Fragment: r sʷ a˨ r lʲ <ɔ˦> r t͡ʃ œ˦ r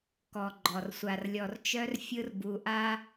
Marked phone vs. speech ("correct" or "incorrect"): incorrect